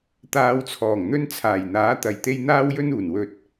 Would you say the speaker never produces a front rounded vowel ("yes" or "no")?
yes